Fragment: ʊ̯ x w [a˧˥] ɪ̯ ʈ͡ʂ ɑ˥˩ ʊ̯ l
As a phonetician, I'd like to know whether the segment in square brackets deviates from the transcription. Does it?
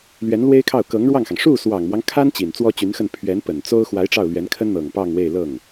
no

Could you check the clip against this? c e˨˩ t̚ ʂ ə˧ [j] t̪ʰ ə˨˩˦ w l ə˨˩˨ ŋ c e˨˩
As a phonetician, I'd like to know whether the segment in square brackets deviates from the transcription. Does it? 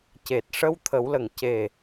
yes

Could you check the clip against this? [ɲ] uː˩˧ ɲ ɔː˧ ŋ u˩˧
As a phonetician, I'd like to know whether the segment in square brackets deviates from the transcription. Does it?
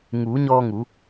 yes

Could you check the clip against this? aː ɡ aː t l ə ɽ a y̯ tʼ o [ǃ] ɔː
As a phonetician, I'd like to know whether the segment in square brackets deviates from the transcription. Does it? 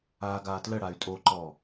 no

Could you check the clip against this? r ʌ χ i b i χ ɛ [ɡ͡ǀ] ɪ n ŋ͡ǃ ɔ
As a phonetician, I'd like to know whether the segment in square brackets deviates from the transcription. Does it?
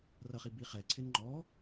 yes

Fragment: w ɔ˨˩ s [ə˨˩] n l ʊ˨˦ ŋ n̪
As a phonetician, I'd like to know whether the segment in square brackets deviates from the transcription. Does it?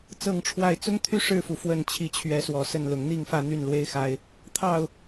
yes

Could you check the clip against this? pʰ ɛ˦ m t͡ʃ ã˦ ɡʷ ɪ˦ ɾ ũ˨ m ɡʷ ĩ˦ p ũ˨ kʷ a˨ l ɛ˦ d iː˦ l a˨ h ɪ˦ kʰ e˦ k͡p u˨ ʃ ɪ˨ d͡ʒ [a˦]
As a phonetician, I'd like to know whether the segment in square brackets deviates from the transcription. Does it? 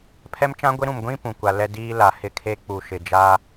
no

